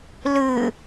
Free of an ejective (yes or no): yes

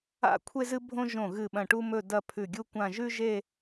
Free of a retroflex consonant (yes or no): no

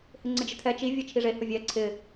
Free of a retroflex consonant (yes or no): no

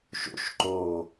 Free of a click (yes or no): no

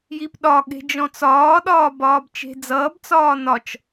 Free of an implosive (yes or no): no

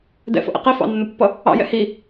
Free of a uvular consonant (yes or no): no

